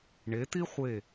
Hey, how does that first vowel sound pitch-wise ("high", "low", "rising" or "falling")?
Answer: rising